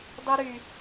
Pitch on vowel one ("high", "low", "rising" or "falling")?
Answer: high